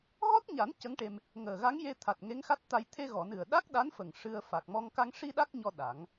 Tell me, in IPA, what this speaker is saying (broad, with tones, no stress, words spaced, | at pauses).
ɣɔ˦˥t̚ɲa˨˩˦n cə˧˥ŋʈe˧m | ŋəː˨˩ɣa˧˥ŋje˧t̪ʰa˨˩t̚ ŋe˧˥ŋxa˦˥t̚t̪a˧j t̪ʰe˧ɣɔ˨˩˨ nɨ˨˩ə̯ɗa˦˥k̚ɗa˧˥nfə˨˩ŋ ʂɨ˧ə̯ fa˨˩k̚mɔ˧ŋ ka˧ŋ ʂi˧ ɗa˦˥k̚ɲɔ˧ ɗa˨˩˦ŋ